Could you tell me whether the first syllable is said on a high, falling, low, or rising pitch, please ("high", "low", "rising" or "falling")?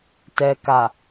low